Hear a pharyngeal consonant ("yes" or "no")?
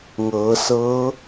no